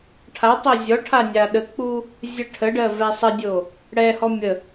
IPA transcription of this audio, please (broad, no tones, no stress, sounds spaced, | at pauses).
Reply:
ʈʰ a tˤ o zʲ ɔ ʈʰ a nʲ a ɗ ə k͡p u | zʲ ə ʈʰ ə ɖ ɜ v ɛ sˤ ə dʲ o | ɽ ɛ h ɔ mʲ ə